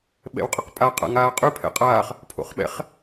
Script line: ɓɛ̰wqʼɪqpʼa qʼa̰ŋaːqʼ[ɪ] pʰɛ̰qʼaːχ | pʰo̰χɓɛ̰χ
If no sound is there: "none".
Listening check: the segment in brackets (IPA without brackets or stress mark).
y